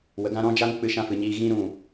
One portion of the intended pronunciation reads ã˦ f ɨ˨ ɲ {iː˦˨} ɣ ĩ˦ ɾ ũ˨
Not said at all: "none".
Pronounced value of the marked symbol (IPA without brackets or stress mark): iː˦